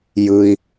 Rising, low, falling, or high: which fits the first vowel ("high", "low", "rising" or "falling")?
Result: high